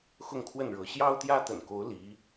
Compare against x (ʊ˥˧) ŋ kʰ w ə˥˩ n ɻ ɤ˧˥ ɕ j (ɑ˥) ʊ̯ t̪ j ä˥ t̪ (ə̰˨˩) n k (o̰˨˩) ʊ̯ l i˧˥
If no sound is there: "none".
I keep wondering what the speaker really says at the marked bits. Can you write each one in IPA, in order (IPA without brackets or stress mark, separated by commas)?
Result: ʊ˥˧, ɑ˥, ə̰˨˩, o˧˥